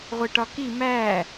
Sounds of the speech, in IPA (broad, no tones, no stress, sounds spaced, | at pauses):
ʁʷ e ʈ ɒ k i m æ